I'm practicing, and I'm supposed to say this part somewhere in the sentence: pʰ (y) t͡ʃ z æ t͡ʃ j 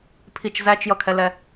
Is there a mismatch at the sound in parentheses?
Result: yes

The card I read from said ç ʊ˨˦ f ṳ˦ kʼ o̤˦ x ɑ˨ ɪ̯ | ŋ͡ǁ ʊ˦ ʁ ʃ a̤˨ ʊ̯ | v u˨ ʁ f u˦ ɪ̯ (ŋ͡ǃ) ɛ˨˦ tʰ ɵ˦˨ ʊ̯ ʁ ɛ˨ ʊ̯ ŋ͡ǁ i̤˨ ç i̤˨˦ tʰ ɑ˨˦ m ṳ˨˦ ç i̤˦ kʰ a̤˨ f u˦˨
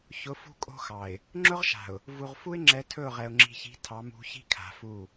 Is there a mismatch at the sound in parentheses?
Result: yes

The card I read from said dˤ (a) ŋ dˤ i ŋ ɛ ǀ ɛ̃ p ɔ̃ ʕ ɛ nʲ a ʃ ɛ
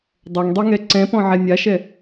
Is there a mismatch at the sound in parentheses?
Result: yes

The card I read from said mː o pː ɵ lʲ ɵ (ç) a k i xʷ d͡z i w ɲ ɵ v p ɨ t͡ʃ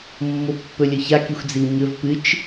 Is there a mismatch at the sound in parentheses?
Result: no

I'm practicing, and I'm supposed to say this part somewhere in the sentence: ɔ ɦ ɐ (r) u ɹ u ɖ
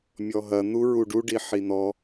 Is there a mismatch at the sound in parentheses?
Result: yes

